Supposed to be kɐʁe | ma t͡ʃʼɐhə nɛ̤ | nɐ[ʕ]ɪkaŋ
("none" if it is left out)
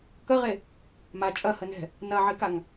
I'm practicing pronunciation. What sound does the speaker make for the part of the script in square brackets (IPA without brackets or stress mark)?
ʕ